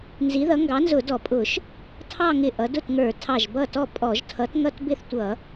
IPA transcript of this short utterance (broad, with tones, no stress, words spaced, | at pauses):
nzi˨˥ðʌ˨˥ ŋɡɑ˨˥nzʊ˧˩˧dɔ˧˩˧pʼʊ˧˩˧ʃ | tʰɑ˥˧ ŋɪ˧˩ ʔʌ˩˧dʊ˥˩tŋə˞˧˩˧ tʰɑ˧˩ʒbʌ˥˩tɔ˥˩ pʼɔ˧˩˧ʒtʰʌ˨˥tŋʌ˥˧t bɪ˥˧θtʷʌ˧˩˧